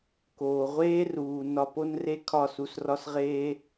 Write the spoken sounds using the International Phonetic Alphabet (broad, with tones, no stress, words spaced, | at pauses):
koː˨ʁʷeː˦ruː˨ nɒ˧po˦nre˦ kʰɒ˦˨su˧srɒ˦sʁeː˦